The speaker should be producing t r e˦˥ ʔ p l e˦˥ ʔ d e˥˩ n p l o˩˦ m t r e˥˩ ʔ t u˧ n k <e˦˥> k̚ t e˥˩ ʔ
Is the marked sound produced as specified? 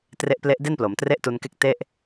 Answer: yes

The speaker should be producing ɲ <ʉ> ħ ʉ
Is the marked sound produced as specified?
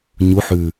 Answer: no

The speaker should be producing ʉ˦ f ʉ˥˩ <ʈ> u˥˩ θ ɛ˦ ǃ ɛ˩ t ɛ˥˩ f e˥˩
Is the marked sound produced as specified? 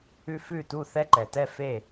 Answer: no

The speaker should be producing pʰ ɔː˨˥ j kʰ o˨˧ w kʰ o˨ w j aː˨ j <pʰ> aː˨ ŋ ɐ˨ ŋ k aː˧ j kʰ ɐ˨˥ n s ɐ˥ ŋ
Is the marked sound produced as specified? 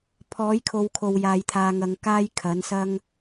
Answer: no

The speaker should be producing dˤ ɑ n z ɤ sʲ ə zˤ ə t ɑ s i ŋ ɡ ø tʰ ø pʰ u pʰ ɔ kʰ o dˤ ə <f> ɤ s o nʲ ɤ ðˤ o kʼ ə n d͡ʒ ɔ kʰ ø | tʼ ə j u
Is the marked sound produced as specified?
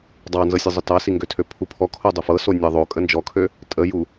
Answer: yes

